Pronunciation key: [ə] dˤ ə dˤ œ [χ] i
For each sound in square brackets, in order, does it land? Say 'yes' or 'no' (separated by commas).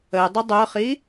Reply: yes, yes